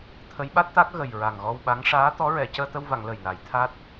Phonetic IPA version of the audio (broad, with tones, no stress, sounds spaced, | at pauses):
t̪ʰ ə˧˥ j ɓ a˦˥ t̚ t̪ a˦˥ k̚ ɣ ə˨˩ j ɹ a˨˩ ŋ ɣ ɔ˧ w ɓ a˧˥ ŋ ʂ aː˧˥ t̪ ɔ˧˥ ɹ ɛ˨˩˨ c əː˧ t̪ ə˧ w v a˨˩˨ ŋ l ə˨˩ j n a˨˩˦ j t̪ʰ a˦˥ t̚